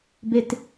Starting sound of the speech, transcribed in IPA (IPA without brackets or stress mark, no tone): b